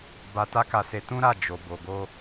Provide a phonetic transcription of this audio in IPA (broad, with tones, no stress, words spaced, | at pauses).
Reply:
ba˧ta˦ka˧se˧ tũ˦ɾa˦˨ d͡ʒo˨ bo˨ɡo˧